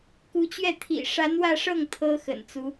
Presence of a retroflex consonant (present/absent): present